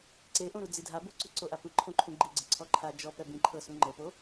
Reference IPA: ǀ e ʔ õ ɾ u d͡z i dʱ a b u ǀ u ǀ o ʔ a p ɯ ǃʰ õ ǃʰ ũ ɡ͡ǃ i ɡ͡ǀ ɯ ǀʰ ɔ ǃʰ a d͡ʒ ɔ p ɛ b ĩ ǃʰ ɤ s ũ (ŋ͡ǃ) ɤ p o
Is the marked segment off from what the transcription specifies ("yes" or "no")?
no